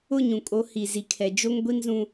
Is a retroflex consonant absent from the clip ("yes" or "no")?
yes